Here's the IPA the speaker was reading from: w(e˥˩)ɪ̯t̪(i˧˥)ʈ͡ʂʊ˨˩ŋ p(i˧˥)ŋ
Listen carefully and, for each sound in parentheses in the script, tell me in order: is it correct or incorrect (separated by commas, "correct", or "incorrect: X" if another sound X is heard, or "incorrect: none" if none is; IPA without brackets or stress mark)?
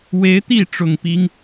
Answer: incorrect: e˧˥, incorrect: i˥˩, incorrect: i˥